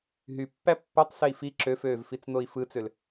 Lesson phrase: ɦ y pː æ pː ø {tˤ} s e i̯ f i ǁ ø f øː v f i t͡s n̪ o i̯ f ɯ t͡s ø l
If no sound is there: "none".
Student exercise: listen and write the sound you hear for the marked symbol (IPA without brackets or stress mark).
tˤ